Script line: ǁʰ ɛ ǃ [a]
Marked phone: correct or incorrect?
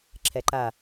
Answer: correct